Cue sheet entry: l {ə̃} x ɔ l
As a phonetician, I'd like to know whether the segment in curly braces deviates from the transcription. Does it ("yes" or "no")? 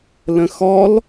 no